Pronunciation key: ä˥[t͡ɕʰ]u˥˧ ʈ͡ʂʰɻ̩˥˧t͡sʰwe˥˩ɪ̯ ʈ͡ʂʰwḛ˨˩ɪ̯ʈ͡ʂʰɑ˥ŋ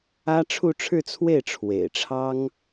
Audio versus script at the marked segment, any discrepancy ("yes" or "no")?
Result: yes